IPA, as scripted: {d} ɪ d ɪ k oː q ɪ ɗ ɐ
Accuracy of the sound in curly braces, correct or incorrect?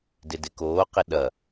correct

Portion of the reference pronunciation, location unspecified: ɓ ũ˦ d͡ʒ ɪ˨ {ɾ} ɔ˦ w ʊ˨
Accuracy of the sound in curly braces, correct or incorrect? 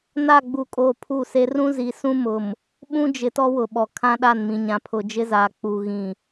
incorrect: t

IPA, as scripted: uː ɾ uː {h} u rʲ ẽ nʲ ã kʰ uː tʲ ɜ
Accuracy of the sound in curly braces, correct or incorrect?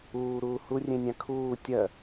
correct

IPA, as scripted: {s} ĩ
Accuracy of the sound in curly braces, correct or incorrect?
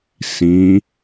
correct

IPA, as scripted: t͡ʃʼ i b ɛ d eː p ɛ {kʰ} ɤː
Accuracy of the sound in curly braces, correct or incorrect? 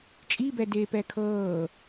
correct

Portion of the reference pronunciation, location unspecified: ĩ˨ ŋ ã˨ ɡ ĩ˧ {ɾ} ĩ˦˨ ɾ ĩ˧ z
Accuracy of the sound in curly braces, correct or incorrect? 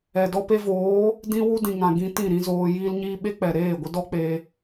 incorrect: t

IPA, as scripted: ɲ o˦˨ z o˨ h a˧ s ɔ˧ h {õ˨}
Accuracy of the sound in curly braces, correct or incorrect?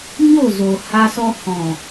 incorrect: ɔ̃˨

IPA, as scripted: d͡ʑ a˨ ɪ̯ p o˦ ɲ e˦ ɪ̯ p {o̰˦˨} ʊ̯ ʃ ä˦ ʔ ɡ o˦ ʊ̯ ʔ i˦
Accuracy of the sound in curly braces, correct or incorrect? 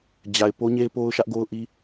incorrect: o˦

